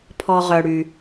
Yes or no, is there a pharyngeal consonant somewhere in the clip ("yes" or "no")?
no